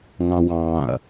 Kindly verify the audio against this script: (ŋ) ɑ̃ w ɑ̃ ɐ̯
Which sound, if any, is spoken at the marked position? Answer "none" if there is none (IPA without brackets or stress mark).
ŋ